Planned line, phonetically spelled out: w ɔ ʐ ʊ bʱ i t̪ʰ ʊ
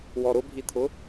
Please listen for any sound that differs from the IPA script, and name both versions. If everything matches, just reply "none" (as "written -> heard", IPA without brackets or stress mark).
ʐ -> ɾ